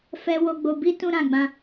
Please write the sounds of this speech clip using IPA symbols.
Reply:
fɛ˧ wo˧ɡ͡bo˧bi˦ tũ˦ɾã˧ɡ͡bã˦

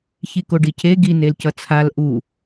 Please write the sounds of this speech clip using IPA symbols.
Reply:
çikoɖicʰe ɡi nelcʌt͡sʰal ʔu

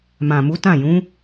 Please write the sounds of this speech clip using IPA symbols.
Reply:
mã˨mu˨˦ tã˦˨jũ˨˦

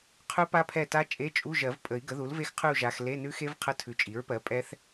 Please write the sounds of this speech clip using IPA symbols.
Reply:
qʰʉ˦˥pa˦˥pʰɛ˦˨ta˦˥ t͡ʃʼe˧˥˧t͡ʃʼu˧˥˧ʒɜ˨˩˦vpʼə˨˩˦i̯ ɡə˩˥ðu˩˥lve˦˥xqʰʉ˦˨u̯ ʒa˨xle˧˥˧nʉ˦˥xe˦˥v qʰə˧˥˧tʰʉ˩˥t͡ʃʼi˩˥ɹpɜ˩˥ pʼɛ˦˥θ

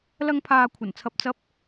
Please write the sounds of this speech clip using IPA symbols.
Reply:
lɐ˧ŋpʰaː˨ kʷʰɐ˨˩nt͡sʰɐ˨p̚ t͡sɐ˨˥p̚

